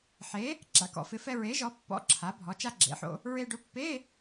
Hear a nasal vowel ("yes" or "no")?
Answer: no